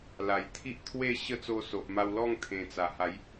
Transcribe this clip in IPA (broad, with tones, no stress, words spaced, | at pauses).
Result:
la˨˩jt̪ʰi˦ʔt̪ʰwe˥˧ɕə˦ t͡so˧so˨ʔma˧w lɔ˥˧ŋt̪ʰẽ˨˩t͡sa˨˩ ha˨˦j